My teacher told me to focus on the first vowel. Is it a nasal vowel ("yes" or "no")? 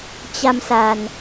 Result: no